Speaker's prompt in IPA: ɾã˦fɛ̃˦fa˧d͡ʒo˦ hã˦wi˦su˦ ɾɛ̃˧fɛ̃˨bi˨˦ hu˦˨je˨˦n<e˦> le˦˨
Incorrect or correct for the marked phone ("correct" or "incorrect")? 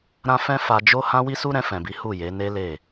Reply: correct